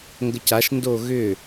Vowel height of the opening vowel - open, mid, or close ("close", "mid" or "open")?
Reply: mid